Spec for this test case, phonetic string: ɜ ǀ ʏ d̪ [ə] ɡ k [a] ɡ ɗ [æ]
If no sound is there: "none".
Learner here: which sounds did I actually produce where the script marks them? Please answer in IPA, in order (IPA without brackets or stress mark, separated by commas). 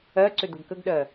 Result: ə, ə, ɜ